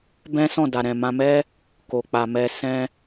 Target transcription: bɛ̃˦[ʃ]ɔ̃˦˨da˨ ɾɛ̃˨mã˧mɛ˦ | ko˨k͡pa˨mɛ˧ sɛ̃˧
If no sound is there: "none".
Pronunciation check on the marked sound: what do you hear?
s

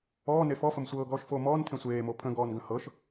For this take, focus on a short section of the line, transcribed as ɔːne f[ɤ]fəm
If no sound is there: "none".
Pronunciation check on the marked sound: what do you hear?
ɔ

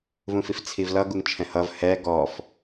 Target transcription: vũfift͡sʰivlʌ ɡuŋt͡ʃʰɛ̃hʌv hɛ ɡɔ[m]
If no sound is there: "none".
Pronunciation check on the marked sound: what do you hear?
f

